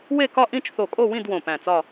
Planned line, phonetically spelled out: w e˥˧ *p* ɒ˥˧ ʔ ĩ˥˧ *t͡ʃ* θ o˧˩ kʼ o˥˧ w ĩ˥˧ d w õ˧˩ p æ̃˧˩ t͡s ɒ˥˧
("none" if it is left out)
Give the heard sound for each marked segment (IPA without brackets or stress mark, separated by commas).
k, t͡ʃ